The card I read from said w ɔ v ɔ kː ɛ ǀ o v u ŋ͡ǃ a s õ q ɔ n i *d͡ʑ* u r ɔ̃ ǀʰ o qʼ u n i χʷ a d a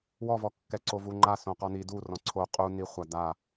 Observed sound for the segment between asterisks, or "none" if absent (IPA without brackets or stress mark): d